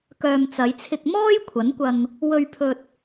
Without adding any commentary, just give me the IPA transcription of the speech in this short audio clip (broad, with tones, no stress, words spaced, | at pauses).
kœː˨m t͡sɐ˨˧jt͡sʰɪ˧k̚mɔː˥j kʷʰɐ˨˥nkʷɐ˧ŋ | wɵ˧ɥpʰɵ˧t̚